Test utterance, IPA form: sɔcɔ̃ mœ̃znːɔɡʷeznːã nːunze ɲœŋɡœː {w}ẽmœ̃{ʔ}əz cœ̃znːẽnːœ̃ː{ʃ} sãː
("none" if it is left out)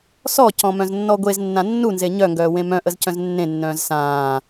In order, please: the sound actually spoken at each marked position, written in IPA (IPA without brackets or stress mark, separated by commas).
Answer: w, ʔ, z